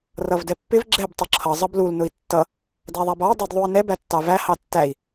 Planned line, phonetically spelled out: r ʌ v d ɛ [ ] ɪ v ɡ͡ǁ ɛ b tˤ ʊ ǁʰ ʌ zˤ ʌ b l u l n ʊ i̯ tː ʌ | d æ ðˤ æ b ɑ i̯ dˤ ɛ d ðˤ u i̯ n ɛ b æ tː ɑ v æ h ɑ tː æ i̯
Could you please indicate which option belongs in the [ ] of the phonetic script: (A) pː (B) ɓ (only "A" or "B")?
A